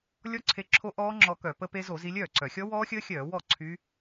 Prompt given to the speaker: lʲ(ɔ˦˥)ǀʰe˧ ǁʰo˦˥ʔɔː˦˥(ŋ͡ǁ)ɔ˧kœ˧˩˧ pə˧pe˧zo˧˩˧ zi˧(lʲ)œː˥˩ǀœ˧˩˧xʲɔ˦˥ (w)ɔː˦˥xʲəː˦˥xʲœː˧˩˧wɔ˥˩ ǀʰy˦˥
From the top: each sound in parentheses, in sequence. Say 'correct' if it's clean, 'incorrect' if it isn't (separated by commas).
correct, correct, correct, correct